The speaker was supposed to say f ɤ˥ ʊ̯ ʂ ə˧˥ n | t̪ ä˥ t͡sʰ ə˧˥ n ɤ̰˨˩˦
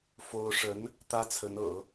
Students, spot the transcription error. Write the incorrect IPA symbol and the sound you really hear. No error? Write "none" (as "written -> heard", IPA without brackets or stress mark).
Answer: ɤ˥ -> o˥